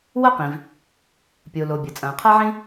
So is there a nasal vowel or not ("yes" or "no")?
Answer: yes